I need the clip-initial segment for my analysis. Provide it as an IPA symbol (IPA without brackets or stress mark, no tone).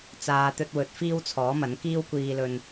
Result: t͡s